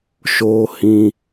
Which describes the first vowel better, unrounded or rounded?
rounded